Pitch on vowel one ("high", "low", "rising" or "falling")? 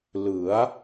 rising